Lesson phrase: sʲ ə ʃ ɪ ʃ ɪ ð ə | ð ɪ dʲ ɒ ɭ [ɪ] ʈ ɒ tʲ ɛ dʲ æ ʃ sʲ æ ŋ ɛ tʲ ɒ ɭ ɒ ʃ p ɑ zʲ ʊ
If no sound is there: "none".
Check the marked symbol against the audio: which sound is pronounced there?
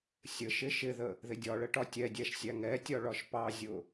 ə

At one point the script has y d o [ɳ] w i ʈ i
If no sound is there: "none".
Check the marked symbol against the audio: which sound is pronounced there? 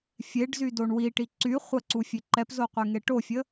ɳ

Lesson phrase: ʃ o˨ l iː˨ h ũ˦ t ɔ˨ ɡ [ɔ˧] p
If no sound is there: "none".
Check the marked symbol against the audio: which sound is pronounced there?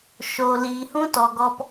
ɔ˧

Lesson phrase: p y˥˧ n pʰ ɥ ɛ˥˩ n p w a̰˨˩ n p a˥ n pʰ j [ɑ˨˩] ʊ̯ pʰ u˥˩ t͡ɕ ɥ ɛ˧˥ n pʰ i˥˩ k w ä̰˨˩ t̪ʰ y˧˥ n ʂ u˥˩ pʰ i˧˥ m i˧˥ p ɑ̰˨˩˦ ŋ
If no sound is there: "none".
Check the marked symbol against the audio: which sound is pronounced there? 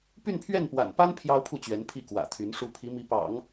ɑ˥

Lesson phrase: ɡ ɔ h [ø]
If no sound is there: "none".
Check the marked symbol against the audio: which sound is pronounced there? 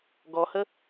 ə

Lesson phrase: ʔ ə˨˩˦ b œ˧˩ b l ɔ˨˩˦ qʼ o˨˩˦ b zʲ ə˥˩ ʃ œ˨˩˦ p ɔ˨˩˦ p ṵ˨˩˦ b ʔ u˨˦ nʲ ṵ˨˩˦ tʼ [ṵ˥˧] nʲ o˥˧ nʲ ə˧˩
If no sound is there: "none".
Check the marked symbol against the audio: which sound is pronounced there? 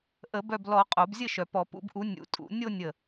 ṵ˨˩˦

